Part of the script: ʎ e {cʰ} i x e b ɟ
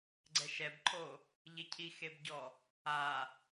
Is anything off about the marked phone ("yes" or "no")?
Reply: no